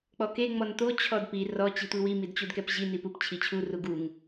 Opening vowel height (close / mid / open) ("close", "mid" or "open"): mid